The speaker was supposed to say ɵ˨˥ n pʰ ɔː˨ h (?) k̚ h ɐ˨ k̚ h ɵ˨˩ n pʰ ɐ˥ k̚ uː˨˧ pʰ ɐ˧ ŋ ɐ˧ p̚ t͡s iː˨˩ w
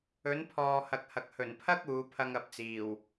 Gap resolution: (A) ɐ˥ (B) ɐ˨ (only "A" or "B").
B